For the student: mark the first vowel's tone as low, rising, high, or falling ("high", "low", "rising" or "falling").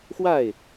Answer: falling